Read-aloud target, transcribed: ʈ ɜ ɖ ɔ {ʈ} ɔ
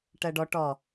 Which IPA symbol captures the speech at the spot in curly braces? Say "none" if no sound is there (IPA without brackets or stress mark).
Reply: ʈ